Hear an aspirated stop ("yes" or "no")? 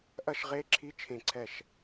yes